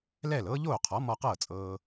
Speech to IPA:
l ɛː˥˩ l ɤː˥ ʎ oː˥˩ qʰ ɔ˩˥ m ɔ˧ q ɤː˥˩ t͡sʼ ɤː˧

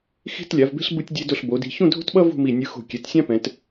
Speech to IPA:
x i̤˥˧ t lʲ a˩˧ v b e̤˥ ɬ b ɯ˧ tʲ dʲ e˧ d o˧˩ ɬ b o˩˧ d i̤˧ ç ũ˥˧ dʱ o̤˥ t ɓ ʌ˥ v ṳ˥˧ m i˧˩ nʲ ɯ˧ x o̤˧˩ kʲ ɛ˩˧ t sʲ ã˥ p ɛ̃˩˧ t

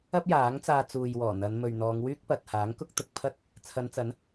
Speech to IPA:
ɐ˥ p̚ j aː˨˥ ŋ t͡s aː˧ t͡s uː˨ j w ɔː˨˩ n̪ ɐ˨˧ n m ɵ˨ ɥ n̪ ɔː˨˧ ŋ w yː˥ k̚ p ɐ˨ t̚ h aː˨˥ ŋ k ʊ˥ k̚ t̪ ʊ˧ k̚ pʰ ɐ˥ t̚ | t͡sʰ ɐ˨˧ n t͡s ɐ˨˥ n

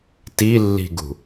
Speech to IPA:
t i lː i̤ ɡ ṳ

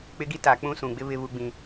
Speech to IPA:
k͡p ɪ˦ ɡ i˦ t a˨ k͡p ũ˦ s ũ˨ ɡ͡b ɪ˦ β ɪ˦ β u˦ ɡ͡b ĩ˦

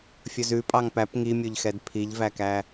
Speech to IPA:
fʲ ɵ z ʉ pʼ ɑ ŋ p æ p ŋ i mʲ ɵ ʎ x ɛ d pʰ i ʎ v æ k æ

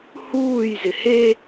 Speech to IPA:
h uː j z ɪ h e

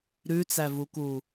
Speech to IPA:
ɾ ʉ t͡s æ v u k u

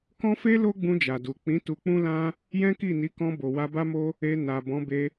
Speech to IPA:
k ɔ̃˦ f e˦ l o˦ ɡ͡b ũ˧ d͡ʒ a˨ d u˨ k͡p ĩ˨˦ t u˧ k͡p ũ˦ l ã˦ | j ɛ̃˦ k i˦˨ n i˨˦ k ɔ̃˧ b o˨ w a˧ b a˦ m o˦ | e˧ n a˨ b ɔ̃˨˦ b e˧

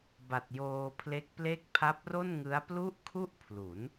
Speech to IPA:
b a˨˩ t̚ j oː˧ pʰ l e˦˥ k̚ p l e˥˩ k̚ pʰ a˦˥ p̚ r o˥˩ n ŋ ɯ˦˥ a̯ p l u˥˩ ʔ kʰ u˥˩ ʔ pʰ l u˩˦ n

